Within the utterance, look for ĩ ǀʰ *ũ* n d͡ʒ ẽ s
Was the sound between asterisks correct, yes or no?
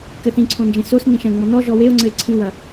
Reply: no